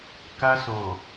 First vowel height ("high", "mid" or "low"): low